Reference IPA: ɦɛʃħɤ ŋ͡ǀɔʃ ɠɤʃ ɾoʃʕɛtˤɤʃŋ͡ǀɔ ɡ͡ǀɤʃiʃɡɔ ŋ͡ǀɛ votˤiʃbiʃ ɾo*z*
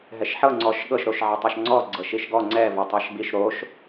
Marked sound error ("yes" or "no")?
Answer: yes